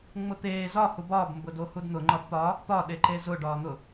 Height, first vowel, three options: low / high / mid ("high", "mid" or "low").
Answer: high